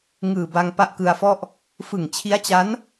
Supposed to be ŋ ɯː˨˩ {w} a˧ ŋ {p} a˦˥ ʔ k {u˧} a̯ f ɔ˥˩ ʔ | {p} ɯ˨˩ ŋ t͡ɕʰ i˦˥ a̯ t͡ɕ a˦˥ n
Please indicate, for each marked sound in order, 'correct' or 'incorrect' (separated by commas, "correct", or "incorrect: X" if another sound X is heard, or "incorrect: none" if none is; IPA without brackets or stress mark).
incorrect: b, correct, incorrect: ɯ˧, incorrect: f